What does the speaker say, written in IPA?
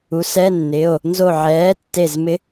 u˩˥ s ɛ˧˥˧ nː ɪ˩˧˩ o̯ | n z o˧˩ ʕ ɛː˩˥ tː e˧˩ z m ɪ˧˥

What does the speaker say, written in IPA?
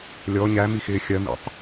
lʲ ɔ ɲ æ m i x ɪː xʲ ɜ m ḭ tˤ

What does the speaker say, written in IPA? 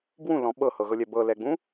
b w ũ l ɔ̃ ɓ ɤ h ɤ ɣ ɤ lʲ ɛ b ɤ l ɛ ɡ͡b ũ

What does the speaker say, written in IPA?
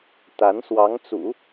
t̪ a˧˥ n s w ɑ˧˥ ŋ t͡s ṵ˨˩˦

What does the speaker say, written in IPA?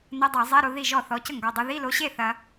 n ɐ˧˥˧ dˤ ɛ˧˩˧ zˤ ɛ˧˥˧ ɾ o˧ ð i˥˩ ʒ ɔ˥˩ θ ɔ˩˧˩ c ə˥˩ ŋ ɡ ɔ˩˧˩ dˤ o˧ ð i˧˥˧ l o˧ ɕ e˥˩ θ ɐ˧

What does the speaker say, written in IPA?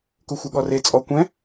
k u xʷ e ɠ ɔ r e t͡sʼ ɔ kʷ ɛ̃

